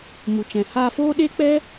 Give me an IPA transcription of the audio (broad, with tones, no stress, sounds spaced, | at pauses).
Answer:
m u˨ t͡ʃ ɛ̃˨ h a˧ f oː˦ ɗ e˦ k͡p ɛ˦